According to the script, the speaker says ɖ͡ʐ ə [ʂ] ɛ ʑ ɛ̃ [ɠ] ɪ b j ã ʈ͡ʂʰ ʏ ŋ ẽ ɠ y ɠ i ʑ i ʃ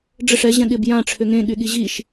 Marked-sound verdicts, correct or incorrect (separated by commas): correct, correct